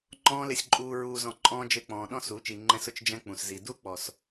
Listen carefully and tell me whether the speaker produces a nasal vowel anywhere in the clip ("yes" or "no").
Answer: yes